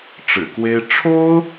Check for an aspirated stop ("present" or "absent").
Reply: present